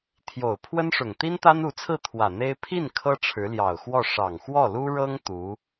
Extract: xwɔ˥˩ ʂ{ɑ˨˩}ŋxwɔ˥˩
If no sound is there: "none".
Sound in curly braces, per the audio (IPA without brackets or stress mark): ɑ˨˩